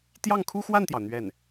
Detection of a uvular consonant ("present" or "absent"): absent